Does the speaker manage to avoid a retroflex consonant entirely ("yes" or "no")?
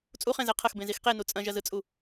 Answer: yes